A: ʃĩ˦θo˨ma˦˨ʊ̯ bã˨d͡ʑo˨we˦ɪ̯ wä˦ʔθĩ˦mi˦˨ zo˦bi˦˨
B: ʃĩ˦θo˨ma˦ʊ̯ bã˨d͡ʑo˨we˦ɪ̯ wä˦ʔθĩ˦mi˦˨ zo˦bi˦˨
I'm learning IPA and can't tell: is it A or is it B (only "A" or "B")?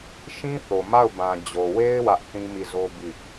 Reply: A